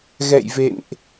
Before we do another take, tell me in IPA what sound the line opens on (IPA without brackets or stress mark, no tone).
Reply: ɣ